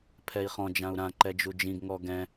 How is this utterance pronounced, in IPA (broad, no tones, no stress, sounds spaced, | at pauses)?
pʰ ɛ i̯ χ ɔ̃ d͡ʒ ã u̯ ɾ ã ǃ ɛ d͡ʒ u d͡ʒ ĩ ɡ ŋ ɔ ɡ ɛ̃